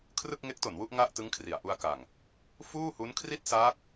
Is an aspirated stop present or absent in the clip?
present